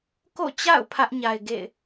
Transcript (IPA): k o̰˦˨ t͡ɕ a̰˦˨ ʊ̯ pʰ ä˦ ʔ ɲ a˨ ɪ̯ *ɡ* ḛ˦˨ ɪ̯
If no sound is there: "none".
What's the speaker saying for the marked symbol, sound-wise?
ɡ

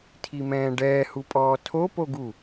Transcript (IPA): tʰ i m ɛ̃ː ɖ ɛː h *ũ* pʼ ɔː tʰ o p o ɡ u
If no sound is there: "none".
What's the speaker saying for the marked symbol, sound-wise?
u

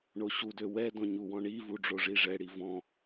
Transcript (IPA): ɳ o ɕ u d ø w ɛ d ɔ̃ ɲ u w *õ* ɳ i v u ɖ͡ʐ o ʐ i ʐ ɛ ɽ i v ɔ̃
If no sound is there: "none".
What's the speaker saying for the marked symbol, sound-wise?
ɔ̃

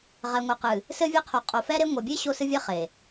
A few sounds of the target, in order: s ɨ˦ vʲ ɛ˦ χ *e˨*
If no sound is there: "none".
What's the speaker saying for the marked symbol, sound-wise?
e˨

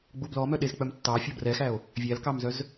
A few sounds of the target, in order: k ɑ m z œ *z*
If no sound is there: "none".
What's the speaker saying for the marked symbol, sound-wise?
z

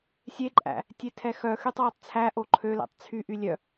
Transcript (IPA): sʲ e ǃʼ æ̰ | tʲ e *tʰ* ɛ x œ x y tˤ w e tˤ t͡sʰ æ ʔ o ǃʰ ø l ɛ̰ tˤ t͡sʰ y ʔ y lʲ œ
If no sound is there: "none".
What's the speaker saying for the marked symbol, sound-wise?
tʰ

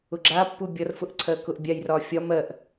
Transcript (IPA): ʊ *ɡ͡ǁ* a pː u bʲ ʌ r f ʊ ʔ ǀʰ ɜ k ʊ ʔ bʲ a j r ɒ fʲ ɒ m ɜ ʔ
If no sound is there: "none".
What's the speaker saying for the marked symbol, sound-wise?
ɡ͡ǁ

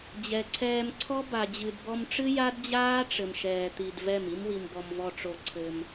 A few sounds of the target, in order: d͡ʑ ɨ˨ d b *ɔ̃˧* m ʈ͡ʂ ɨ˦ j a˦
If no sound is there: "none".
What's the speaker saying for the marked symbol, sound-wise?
ɔ˧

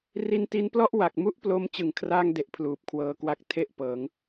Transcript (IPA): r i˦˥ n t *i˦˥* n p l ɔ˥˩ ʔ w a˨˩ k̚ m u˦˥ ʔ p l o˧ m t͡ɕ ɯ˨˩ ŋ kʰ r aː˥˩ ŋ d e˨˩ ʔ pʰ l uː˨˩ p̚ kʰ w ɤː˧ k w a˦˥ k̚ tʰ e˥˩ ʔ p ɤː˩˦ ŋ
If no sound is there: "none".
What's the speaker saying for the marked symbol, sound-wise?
i˦˥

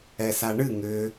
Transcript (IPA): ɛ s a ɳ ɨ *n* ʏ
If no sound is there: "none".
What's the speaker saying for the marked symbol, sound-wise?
ŋ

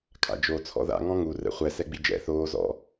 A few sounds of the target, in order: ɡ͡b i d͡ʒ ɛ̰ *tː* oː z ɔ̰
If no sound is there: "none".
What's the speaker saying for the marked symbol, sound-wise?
θ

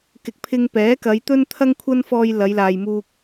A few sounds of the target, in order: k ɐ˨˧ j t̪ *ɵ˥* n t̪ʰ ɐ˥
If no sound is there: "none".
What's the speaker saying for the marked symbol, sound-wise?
ɵ˥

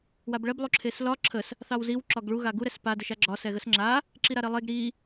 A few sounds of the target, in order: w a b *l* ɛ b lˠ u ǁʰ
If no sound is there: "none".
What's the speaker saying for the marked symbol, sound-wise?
ɭ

